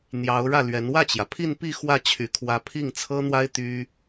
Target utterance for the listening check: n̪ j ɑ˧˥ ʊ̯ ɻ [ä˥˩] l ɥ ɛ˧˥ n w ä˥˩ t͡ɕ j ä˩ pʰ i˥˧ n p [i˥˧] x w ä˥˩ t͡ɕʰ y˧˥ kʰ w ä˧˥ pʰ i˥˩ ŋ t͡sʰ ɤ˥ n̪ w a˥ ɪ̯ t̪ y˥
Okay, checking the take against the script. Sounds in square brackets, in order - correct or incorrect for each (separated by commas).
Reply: correct, correct